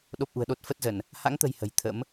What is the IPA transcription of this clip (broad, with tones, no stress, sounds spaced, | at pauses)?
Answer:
ɗ o˦˥ p̚ ʔ ṳ˨˩ ə̯ ɗ o˦˥ t̚ f ə˦˥ t̚ z ə˧˩˨ n | h a̰˧˥ ŋ t̪ ə̤˨˩ j h ə̤˨˩ j t̪ʰ ə̰˧˥ m